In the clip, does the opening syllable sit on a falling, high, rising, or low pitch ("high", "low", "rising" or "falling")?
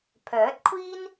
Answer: rising